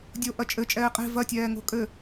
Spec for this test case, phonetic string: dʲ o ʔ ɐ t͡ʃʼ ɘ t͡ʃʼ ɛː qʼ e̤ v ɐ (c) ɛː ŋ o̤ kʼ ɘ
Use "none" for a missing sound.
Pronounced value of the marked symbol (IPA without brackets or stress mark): tʲ